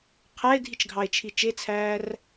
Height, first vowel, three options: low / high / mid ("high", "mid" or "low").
low